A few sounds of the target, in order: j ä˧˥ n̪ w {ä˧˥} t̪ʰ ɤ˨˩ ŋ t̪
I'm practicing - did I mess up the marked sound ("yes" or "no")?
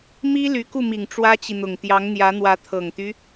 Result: no